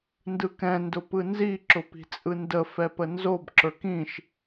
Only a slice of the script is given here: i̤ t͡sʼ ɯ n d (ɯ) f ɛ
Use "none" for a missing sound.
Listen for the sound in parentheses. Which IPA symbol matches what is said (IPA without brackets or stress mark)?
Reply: ə